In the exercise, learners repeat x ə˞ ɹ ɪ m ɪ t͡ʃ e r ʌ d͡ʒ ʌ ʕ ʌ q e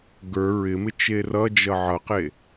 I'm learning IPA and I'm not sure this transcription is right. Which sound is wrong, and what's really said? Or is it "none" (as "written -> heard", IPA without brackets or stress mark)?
x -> ɡ